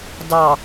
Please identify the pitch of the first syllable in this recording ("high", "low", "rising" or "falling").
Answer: low